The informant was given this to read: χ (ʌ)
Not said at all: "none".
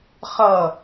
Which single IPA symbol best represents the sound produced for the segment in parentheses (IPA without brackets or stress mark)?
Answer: ʌ